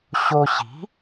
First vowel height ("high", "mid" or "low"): mid